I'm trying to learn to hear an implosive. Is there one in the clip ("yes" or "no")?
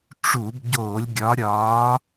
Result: no